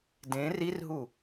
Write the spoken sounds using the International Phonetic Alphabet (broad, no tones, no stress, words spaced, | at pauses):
dẽ rirɦu